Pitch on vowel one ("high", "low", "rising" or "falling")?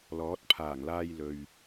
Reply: rising